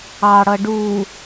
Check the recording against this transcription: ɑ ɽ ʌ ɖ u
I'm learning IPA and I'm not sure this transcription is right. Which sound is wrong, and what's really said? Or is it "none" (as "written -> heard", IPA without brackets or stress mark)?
none